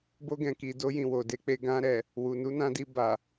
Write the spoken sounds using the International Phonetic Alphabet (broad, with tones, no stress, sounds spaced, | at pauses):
b o˧ ɡ ɛ̃˨ k i˨ d o˧ j ĩ˨ w o˨ d e˧ k͡p e˧ ɡ ã˧ ɾ ɛ˨ | w u˨ n u˨˦ n ã˧ d i˧ b a˨